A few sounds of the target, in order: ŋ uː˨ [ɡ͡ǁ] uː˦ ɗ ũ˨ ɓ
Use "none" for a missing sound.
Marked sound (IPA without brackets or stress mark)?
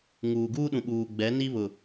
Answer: ɡ